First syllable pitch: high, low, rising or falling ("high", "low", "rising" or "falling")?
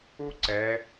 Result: high